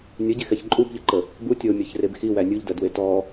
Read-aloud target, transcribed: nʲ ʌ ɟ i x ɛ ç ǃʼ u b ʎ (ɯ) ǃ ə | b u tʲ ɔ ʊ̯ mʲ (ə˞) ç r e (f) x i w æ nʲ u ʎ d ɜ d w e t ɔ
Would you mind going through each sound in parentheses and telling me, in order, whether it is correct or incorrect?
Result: correct, incorrect, incorrect

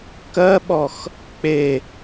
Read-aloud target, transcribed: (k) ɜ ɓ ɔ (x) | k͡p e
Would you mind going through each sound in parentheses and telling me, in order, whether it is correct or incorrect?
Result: correct, correct

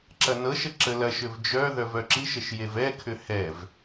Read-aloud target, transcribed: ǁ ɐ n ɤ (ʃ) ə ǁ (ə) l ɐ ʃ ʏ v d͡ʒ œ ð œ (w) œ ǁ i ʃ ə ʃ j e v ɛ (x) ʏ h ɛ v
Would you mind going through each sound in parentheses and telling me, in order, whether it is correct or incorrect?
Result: correct, correct, incorrect, incorrect

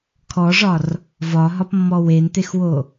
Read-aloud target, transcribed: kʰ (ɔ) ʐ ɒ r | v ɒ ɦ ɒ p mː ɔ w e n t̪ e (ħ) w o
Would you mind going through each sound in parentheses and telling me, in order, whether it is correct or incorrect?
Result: correct, incorrect

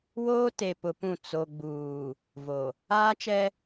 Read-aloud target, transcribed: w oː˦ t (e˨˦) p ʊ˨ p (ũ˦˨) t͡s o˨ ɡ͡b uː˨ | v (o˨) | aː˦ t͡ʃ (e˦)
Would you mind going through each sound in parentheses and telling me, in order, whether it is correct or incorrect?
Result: incorrect, correct, correct, incorrect

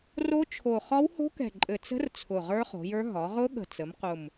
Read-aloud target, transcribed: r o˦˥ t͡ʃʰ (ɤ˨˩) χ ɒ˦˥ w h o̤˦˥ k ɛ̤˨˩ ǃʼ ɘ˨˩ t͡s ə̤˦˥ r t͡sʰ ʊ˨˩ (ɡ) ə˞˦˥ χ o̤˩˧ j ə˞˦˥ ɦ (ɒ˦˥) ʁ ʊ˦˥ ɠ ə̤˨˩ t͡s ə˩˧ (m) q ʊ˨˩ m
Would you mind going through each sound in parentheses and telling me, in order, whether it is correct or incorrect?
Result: incorrect, incorrect, incorrect, correct

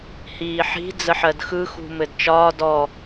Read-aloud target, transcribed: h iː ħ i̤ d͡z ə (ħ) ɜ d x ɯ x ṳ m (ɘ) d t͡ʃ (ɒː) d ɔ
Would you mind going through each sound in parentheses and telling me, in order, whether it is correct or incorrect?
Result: correct, correct, correct

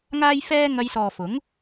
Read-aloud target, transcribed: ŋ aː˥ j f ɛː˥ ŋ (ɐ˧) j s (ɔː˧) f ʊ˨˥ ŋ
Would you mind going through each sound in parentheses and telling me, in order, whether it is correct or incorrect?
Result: correct, incorrect

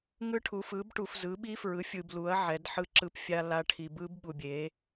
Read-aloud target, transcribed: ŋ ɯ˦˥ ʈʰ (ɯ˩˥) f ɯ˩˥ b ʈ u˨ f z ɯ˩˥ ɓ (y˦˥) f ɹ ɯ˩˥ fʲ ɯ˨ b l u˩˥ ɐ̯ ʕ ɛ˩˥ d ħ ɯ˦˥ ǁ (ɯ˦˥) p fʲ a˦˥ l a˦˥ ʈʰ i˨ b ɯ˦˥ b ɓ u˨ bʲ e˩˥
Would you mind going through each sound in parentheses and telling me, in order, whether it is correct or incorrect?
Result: incorrect, incorrect, correct

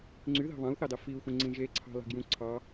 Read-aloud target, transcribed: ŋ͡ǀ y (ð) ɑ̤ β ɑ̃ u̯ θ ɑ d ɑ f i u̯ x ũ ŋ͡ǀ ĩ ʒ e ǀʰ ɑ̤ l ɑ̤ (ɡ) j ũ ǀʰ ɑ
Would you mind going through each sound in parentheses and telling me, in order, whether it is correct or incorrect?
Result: correct, correct

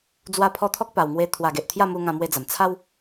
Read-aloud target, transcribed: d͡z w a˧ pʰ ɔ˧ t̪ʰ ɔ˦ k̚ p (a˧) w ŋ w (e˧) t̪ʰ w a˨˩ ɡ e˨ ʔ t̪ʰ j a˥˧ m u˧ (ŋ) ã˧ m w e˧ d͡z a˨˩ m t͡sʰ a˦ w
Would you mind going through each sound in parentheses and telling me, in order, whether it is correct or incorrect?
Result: incorrect, correct, correct

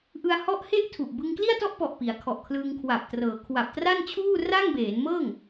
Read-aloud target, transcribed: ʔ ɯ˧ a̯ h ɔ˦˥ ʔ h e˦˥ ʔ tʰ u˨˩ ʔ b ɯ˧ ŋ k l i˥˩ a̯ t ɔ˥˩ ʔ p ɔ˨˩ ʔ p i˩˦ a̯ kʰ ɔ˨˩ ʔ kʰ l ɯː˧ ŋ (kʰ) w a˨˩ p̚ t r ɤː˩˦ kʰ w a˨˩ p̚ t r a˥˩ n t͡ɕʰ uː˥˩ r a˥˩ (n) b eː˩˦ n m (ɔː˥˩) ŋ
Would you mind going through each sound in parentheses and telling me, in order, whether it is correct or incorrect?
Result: correct, incorrect, incorrect

